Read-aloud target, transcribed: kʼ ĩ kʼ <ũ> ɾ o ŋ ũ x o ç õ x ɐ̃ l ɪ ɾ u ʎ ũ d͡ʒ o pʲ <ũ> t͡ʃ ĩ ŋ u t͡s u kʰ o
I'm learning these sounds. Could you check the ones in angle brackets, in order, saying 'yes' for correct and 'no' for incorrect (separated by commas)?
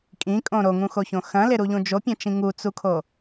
no, no